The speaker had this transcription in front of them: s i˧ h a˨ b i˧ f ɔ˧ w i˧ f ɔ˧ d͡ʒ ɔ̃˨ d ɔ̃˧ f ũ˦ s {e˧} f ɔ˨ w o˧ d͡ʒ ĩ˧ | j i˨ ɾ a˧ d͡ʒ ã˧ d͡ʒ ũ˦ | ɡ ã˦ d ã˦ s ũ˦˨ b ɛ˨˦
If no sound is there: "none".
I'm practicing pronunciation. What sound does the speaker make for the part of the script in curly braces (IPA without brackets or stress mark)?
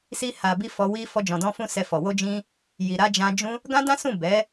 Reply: ɛ˧